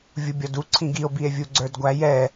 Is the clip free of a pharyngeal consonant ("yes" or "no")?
yes